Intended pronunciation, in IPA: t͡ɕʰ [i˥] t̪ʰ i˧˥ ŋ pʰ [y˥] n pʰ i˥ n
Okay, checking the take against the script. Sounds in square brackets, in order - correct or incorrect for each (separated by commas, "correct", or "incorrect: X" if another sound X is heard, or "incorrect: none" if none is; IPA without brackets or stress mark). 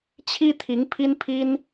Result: correct, incorrect: i˥